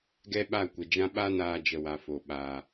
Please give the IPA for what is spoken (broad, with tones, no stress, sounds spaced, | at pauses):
ɡ ɛ˦ ɓ a˦˨ kʷ ə˨ d͡ʒ ã˦ ɓ a˦ n aː˧ d͡ʒ ə˧ w a˨ f o˨ ɓ a˨